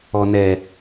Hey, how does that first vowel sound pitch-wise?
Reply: low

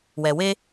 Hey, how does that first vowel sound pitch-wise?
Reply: low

